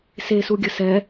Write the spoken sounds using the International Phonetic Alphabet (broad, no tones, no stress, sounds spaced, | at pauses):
s e s u ɡʲ ə s ɛ